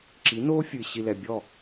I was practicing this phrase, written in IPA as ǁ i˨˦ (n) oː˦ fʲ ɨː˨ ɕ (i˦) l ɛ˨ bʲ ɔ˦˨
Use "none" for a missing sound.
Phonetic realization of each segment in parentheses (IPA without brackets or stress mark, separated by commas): n, i˨